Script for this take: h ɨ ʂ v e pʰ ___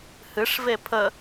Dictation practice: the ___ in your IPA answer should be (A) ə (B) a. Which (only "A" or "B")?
A